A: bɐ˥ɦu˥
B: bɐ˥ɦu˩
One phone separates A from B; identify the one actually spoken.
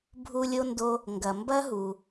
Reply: B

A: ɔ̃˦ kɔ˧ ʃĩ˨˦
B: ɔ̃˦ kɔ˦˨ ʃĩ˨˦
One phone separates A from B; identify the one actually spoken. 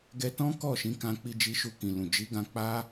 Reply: B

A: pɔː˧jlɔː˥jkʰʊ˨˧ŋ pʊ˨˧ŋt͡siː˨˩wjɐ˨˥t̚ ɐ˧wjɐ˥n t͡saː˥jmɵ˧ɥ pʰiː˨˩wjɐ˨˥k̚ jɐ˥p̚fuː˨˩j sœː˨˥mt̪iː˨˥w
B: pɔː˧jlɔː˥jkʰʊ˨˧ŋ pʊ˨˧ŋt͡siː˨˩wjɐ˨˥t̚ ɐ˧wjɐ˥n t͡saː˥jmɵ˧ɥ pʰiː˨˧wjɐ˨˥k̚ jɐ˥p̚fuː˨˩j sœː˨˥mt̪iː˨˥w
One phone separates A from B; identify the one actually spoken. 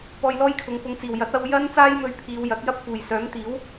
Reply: B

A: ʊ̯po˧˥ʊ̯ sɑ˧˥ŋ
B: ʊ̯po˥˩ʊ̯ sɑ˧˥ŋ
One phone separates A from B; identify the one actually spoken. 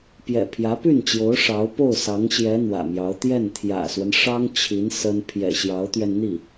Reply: B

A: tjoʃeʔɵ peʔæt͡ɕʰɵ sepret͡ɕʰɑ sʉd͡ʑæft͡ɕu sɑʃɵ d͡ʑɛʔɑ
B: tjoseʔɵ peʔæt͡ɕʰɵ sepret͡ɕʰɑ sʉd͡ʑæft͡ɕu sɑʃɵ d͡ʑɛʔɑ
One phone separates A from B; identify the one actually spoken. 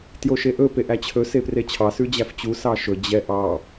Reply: A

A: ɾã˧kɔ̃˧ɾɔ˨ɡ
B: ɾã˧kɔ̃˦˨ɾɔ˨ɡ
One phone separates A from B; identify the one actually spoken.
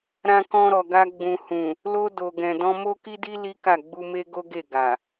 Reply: A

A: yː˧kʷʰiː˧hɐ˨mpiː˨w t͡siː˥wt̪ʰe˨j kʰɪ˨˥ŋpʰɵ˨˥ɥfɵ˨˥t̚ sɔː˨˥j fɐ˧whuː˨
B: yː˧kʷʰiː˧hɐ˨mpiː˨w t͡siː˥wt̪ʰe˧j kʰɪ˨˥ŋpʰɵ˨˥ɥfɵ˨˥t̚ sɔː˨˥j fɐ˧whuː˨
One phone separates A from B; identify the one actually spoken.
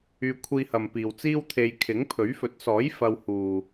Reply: B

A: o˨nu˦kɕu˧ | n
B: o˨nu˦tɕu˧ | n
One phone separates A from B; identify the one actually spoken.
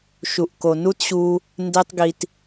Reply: B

